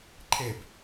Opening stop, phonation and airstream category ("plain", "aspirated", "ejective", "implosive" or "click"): click